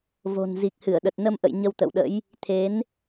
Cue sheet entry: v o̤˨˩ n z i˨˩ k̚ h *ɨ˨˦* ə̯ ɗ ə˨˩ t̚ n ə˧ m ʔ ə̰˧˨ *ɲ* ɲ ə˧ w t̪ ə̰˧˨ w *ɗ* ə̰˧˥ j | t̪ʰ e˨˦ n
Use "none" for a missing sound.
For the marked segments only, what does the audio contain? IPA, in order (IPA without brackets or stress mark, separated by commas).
ɨ˧˩, j, ɗ